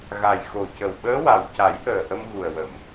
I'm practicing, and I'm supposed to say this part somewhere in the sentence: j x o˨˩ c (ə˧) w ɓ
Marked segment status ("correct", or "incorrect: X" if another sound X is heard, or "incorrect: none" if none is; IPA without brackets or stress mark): incorrect: ə˨˩